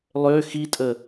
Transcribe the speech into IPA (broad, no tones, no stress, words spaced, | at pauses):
lˠø xitʼə